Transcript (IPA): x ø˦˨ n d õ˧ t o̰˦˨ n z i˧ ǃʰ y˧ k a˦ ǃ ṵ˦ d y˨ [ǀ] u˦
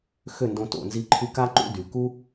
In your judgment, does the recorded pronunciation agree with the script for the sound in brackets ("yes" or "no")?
no